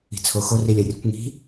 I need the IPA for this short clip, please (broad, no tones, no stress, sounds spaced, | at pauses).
i̤ t͡sʰ o x o r i lʲ ɜ rʲ ə kʷ ŋ i̤